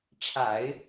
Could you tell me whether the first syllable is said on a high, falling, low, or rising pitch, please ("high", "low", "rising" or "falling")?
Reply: low